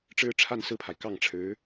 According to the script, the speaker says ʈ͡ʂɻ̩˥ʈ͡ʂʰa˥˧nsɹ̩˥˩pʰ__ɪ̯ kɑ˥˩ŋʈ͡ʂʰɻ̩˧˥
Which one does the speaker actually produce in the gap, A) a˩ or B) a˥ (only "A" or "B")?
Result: A